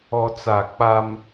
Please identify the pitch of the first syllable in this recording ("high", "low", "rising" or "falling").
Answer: high